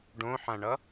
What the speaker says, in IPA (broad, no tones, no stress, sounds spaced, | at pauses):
ɖ õ ħ ã ɳ ʌ